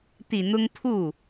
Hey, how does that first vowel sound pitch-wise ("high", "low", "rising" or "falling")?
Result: low